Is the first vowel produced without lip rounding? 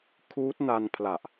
no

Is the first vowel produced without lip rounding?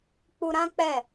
no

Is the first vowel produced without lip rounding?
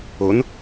no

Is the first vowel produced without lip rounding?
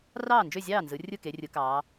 yes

